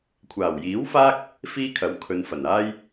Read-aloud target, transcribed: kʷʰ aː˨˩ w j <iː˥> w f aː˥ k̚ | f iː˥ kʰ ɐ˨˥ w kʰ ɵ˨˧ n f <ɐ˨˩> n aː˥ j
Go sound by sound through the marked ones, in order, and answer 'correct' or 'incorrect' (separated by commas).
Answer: incorrect, correct